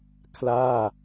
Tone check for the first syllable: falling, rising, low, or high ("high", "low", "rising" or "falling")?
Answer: falling